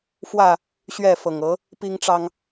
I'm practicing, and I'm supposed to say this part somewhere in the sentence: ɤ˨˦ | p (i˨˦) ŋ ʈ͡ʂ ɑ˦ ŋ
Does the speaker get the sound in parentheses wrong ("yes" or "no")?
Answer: yes